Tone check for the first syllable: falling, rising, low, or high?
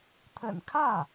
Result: low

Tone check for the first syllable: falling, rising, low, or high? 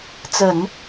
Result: low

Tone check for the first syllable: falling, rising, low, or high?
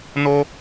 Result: high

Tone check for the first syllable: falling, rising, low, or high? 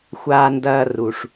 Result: low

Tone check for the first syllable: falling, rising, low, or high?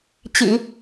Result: low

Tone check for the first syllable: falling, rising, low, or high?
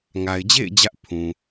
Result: low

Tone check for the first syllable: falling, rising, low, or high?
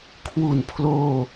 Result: low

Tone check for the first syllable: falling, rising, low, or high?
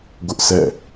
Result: high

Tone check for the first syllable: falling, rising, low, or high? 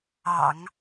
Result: low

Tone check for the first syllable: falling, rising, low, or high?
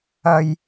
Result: low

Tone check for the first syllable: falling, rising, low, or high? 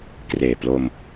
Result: low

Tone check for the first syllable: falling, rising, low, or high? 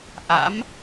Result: rising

